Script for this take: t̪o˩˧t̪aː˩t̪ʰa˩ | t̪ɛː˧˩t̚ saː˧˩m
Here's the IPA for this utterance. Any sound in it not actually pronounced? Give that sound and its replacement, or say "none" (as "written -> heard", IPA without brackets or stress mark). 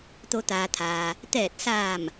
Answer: a˩ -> aː˩